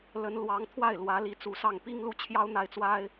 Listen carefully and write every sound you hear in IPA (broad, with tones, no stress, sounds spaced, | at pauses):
l ə˧˥ n l w ɑ˧˥ ŋ t̪ʰ w a˥˩ ɪ̯ l w ä˧˥ l i˧˥ t͡s u˧˥ s ɑ˥˩ ŋ p i˥ ŋ l u˥ t͡ɕʰ j ɑ˥ ʊ̯ n̪ a˥˩ ɪ̯ t͡s w a˥ ɪ̯